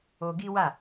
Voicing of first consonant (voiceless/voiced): voiced